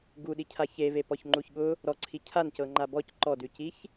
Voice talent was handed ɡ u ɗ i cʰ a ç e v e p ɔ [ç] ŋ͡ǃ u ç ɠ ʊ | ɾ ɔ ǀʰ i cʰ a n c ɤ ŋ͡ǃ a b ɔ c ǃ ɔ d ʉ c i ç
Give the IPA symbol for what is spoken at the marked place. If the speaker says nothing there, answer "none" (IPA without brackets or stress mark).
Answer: ç